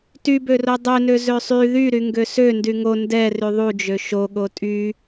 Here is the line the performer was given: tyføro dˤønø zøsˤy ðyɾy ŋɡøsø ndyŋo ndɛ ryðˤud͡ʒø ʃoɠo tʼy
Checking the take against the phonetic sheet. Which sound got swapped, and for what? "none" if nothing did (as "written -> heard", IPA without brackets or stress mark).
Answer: f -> b